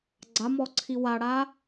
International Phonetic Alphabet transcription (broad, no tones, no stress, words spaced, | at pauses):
ɡ͡ǀamɔǀʰi waɽa